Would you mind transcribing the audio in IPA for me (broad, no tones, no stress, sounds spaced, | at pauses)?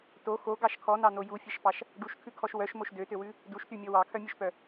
t o x o ɡ ɑ ʃ kʰ ɔ n ɑ n o j u fʲ ɛ ʃ p ɑ ʃ | ɖ u ʃ kʰ ʉ kʰ ɔ ʃ w œ ʃ m o ʃ d ø t ø w ʉ | d u ʃ t y mʲ ɔ w ɑ kʰ œ mʲ ø ʃ p œ